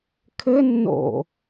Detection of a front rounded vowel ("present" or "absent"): absent